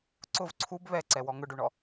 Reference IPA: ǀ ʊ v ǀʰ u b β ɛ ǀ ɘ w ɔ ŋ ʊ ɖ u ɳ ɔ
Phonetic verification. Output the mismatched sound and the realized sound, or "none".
ɘ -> ɛ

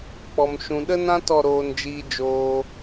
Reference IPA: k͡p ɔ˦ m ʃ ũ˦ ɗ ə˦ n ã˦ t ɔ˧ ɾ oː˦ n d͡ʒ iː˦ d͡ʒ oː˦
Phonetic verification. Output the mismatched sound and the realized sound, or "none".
none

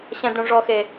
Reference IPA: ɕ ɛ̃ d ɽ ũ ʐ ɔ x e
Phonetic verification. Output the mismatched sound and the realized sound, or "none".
none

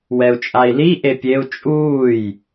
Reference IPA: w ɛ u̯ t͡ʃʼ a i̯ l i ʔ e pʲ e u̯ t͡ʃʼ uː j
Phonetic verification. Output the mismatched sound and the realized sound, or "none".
none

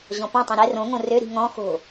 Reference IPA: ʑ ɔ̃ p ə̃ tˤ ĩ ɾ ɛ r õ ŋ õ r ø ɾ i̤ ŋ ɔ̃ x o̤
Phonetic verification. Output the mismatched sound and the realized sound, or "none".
ə̃ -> ɔ̃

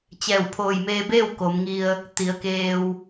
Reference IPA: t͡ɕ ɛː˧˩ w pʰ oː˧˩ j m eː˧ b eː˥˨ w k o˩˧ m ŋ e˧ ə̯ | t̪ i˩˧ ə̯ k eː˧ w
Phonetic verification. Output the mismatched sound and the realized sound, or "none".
e˧ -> i˧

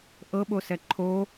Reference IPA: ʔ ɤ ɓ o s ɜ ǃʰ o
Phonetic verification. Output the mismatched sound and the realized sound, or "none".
ɜ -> ɛ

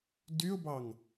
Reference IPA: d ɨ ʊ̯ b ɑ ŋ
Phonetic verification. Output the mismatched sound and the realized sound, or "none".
ɨ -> y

